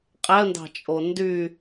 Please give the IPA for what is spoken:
qʼ æ ə̯ n d ɑ̤ t͡ʃʼ o n d y

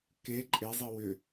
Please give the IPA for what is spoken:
k e ǃʼ e zˤ i w ʏ

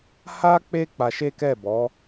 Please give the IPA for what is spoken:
h a˦ k͡p e˦ k͡p a˧ ʃ e˦ k ɛ˦˨ b ɔ˨˦

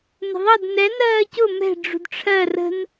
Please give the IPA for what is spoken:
n ə̤ ðˤ ʌ d n ɛ n ɜː c ʊ m ɛ̤ ɖ͡ʐ ṳ d ʈ͡ʂʰ ɜ r ə̤ n

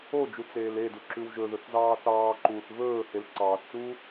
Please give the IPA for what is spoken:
o d͡ʒ u t͡s eː l e d u ǁ ʉ w ʒ ɵ ð ɵ θ z ɑː θ ɑː ǃ uː θ v ɵː h e l ǀ ɑː θ t͡s uː

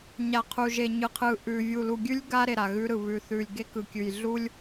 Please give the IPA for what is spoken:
ɲ a˨ qʰ u˨ ʒ e˨ ɲ ɯ˨ qʰ ɯ˨ ʔ ʉ˨ vʲ u˨ l u˨ ɡʲ ʉ˦ lʲ ɡ a˦ ɾ e˨ ɾ a˨ ɣ ʉ˦ ɾ ɯ˨ β ʉ˨ θ ʉ˨ lʲ ɡ e˦ k ɯ˨ kʲ ʉ˨ j ɮ u˦ lʲ

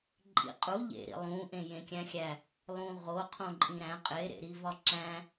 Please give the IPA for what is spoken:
ǃʼ ḭ qʼ u ʎ ḛ ɾ ḭ lˠ ũ ʔ ẽ j ẽ kʲ æ̃ xʲ æ | lˠ ũ ʁ o qʰ õ ǃʼ ĩ ɾ æ̃ qʼ e ɾ ḛ ɾ i v ɒ ǁ æ̃

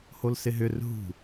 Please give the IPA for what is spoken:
h o l s ɪ ɦ ʏ r ɦ ṳ

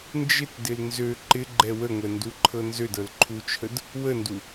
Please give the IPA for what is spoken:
n d͡ʒ ɪ t d ɪ l n z ø ǃ ɪ ɡ͡ǃ ɛ w ə ŋʷ ɛ n d u ǃʰ ɤ n z ø d ɤ l ǃʰ u t͡ʃʰ ə d | w ə n d u

